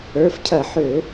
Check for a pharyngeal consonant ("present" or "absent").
present